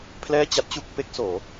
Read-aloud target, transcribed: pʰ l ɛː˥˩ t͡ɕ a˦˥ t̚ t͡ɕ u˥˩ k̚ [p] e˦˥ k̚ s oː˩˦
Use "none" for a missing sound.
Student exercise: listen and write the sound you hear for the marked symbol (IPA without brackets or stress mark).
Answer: p